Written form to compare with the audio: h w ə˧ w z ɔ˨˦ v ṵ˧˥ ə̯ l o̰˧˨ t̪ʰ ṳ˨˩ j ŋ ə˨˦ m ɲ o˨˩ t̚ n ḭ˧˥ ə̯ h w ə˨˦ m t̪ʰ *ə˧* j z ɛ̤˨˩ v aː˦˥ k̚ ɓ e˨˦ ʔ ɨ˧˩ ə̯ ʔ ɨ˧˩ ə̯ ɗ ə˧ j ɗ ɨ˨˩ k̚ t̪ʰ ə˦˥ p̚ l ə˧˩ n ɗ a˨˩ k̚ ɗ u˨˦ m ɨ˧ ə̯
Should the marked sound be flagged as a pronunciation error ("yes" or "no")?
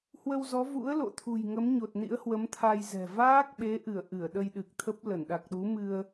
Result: yes